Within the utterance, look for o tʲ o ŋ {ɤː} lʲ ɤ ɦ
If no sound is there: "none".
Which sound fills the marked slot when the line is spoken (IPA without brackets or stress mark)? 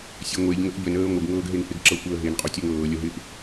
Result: ɤː